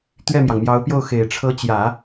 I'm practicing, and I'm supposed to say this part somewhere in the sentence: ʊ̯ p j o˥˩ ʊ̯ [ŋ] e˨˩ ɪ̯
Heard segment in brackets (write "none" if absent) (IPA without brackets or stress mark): x